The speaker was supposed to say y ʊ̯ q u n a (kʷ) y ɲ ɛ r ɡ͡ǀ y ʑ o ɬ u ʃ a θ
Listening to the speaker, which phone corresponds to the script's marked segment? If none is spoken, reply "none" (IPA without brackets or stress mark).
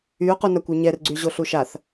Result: kʷ